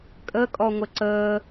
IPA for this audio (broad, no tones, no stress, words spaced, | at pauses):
kʼəkʼɔŋʷə ǀəː